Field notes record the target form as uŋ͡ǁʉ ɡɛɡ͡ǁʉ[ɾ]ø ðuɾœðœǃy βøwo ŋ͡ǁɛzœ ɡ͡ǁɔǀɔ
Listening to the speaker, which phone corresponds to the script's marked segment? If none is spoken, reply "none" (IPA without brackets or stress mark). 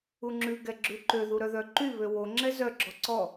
ǃ